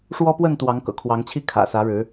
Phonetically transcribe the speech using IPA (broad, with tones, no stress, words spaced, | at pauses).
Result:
ʂwɔ˦pwə˥˨n t̪wɑ˨˦ŋkɤ̰˨˩kʰwɑ˨˦ŋt͡ɕʰi˥˨ kʰä̰˨˩sä˨˦ɻɻ̩˨˦